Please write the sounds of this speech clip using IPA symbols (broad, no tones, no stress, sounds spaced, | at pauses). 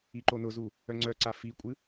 i ǃ o n ʊ z u | œ ŋ͡ǀ œ ǀ a f i kʷʼ ɨ